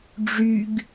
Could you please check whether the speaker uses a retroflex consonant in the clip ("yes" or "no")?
yes